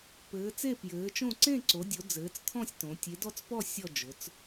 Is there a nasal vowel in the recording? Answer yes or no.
yes